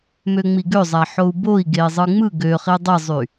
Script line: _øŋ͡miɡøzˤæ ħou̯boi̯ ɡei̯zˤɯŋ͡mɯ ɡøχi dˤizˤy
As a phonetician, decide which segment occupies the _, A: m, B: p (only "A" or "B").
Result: A